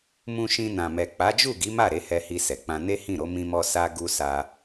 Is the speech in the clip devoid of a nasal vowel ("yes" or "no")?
no